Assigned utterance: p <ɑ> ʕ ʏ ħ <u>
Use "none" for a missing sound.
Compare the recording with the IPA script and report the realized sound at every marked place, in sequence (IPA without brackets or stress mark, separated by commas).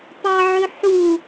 ɑ, u